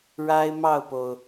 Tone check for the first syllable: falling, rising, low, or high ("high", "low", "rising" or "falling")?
high